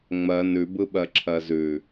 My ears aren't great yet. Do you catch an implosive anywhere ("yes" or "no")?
yes